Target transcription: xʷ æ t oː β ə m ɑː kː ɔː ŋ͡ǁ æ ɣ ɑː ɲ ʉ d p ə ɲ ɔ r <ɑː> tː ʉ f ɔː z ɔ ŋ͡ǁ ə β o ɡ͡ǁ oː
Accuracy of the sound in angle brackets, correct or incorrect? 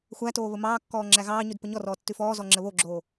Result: incorrect: ɔː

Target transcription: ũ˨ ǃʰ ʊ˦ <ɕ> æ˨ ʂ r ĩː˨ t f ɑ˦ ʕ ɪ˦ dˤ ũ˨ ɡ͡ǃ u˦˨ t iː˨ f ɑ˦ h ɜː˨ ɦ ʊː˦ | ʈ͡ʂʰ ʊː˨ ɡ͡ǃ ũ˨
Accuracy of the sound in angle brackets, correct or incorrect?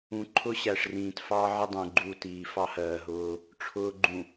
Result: correct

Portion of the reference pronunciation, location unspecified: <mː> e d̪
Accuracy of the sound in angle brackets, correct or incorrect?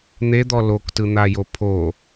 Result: incorrect: n̪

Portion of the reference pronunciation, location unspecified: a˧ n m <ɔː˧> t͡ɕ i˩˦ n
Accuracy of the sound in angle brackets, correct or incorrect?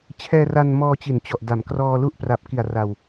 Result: correct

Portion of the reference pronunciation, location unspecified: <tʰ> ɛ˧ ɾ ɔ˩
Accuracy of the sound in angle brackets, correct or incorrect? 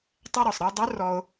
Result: incorrect: tˤ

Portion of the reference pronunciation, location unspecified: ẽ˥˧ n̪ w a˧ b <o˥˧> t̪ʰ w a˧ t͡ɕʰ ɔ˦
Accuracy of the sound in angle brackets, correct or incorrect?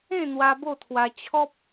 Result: correct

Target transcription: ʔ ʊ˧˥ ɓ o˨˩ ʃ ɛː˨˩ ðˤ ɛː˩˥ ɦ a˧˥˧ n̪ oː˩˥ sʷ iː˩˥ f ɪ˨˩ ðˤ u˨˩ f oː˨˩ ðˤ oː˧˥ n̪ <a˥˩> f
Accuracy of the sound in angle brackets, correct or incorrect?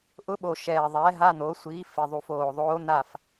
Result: correct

